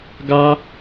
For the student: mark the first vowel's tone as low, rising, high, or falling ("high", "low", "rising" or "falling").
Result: high